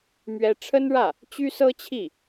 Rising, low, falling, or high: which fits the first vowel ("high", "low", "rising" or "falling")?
high